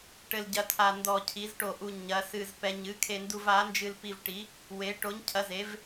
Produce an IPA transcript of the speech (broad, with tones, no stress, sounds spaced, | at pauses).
ʈ ɘ˧ l ɟ ɐ˧ tʰ a˧ n d ɔ˧ cʰ i˨˥ z ʈ o˧ ʔ u˧ ɲ ɐ˨˥ s ɨ˧ z p ɛ˧ ɲ ɨ˨˥ kʰ e˧ n d u˧ v a˨˥ n d͡ʒ ɨ˧ l p i˧ v ʈ i˨˥ | w e˨˥ ʈ o˨˥ ɲ cʰ ɐ˨˥ z e˨˥ v